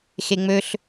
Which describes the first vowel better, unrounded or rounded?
unrounded